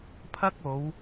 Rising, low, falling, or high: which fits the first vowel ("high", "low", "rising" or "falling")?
high